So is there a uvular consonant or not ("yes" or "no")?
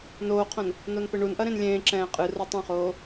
yes